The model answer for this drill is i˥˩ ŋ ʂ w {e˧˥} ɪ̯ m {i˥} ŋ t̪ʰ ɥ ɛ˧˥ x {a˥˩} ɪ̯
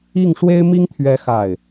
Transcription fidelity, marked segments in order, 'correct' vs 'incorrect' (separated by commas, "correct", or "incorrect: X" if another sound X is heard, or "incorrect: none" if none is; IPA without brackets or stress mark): incorrect: e˥, correct, correct